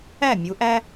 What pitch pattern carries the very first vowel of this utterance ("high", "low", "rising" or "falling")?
falling